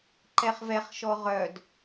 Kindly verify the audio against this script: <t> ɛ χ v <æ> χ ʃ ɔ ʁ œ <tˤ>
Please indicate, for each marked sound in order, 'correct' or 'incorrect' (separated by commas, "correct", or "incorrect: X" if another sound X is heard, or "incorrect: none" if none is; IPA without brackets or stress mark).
incorrect: ǃ, incorrect: ɛ, incorrect: d